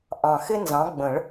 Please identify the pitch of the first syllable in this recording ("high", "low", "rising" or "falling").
low